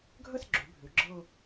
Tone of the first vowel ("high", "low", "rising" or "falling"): falling